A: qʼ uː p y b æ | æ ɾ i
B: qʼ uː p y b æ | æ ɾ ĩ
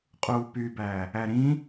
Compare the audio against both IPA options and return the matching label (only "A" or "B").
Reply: B